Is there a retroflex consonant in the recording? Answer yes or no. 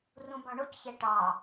yes